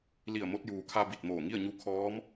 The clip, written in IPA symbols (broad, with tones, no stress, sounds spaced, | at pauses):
l i˧˩ ə̯ m o˧ t̚ j uː˩ kʰ a˧ b i˧˩ t̚ m oː˧˩ ŋ i˥˨ ə̯ ɲ u˧˥ kʰ ɔː˧˥ m